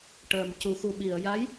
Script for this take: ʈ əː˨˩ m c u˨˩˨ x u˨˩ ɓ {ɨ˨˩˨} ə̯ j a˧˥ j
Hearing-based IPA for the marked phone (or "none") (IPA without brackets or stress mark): i˨˩˨